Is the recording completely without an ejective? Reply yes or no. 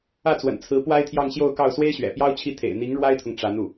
yes